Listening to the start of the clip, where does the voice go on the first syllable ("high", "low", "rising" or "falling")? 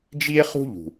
high